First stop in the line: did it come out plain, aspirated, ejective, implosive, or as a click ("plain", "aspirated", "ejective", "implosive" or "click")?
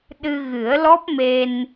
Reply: implosive